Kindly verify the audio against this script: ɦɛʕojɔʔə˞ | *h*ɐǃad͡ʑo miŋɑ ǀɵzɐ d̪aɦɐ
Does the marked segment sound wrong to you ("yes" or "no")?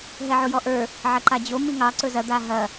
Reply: yes